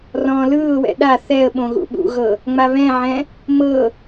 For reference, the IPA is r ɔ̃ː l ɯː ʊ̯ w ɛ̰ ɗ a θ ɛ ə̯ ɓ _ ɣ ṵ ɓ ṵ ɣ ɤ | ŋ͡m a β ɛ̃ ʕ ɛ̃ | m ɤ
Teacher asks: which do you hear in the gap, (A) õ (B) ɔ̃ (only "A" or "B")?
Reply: A